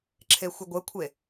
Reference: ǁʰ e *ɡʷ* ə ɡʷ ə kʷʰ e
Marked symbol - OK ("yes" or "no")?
no